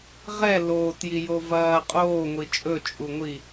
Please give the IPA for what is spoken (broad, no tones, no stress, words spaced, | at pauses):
ʁɛ loːtjijo vɐː qʼoːŋʷi t͡ʃʼɵt͡ʃʼuŋʷi